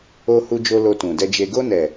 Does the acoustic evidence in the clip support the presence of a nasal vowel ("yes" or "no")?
yes